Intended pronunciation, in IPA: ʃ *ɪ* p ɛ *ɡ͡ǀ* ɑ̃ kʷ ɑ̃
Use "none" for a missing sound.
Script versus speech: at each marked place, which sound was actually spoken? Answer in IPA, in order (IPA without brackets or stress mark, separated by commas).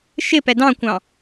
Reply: ɪ, d